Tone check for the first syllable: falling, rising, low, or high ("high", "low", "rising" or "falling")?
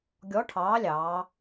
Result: rising